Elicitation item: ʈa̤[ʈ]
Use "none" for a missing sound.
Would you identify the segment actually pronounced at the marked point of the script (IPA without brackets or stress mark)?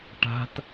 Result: t